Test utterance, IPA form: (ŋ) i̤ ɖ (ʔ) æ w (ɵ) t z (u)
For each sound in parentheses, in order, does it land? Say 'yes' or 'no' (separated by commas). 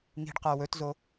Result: yes, no, yes, no